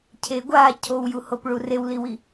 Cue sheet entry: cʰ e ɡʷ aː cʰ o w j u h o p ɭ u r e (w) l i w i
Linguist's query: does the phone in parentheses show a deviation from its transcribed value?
no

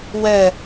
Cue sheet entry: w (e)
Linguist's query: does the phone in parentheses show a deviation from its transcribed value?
yes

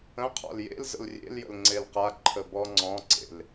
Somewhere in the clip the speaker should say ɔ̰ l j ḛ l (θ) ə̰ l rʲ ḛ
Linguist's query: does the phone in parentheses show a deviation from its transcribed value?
yes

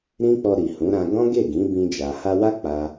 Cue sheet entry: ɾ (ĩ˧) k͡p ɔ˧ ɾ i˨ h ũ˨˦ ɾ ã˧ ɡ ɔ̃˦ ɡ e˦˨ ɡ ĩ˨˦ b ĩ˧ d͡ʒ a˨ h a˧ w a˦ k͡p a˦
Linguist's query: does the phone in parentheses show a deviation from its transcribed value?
yes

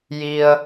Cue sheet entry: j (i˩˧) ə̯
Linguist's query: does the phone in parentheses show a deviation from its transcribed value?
yes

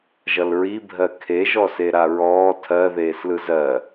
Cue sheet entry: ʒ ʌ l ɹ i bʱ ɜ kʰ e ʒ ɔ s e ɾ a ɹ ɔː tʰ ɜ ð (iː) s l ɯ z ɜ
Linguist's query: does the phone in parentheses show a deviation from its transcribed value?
yes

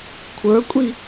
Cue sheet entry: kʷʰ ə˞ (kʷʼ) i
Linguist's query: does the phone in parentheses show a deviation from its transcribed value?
no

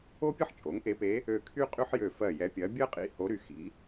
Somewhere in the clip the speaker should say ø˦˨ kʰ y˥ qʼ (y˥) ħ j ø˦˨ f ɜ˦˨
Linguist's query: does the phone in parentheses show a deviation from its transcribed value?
no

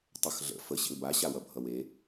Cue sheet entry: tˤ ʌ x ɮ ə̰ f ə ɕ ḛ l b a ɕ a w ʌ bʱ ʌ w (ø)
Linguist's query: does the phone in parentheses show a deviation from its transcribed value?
yes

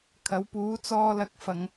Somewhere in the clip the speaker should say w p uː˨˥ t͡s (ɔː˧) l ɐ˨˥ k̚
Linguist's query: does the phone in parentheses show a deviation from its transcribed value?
no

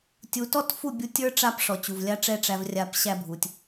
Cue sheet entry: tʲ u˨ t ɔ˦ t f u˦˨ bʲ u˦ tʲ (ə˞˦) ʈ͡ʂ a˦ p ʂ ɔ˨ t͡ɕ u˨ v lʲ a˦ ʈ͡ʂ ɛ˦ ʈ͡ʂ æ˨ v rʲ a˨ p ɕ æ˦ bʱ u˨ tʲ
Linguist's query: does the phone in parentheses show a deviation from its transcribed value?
no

